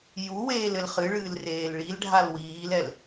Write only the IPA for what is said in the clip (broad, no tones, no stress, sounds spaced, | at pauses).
j u w eː l ɘ l χ ɨ ɭ ɨː l r eː l ɭ i l ɖʱ a l w iː l ɛ l